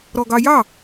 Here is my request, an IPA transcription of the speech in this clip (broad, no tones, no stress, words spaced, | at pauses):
ɾɔɡɑjɑ